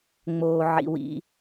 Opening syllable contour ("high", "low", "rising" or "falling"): low